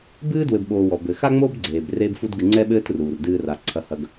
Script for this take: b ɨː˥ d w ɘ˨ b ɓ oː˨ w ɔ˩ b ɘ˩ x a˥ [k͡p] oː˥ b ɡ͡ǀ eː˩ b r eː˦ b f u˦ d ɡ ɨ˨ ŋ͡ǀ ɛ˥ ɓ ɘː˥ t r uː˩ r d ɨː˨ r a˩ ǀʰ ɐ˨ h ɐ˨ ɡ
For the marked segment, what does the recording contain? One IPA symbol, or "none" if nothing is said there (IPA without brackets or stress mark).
ŋ͡m